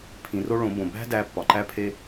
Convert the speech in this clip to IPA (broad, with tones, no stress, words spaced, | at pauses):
pʰĩ˩˧ro˥ ɭõ˩˧bõ˩ bæ̤˥dæ˧ pːɒ˩ǃæ˥pʰe˥